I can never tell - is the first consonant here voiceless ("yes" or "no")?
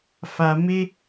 yes